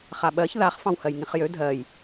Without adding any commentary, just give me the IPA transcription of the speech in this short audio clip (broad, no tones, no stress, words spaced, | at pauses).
χaɓɜç ðaχ fɑ̃whɜjŋĩχjø dʱɜj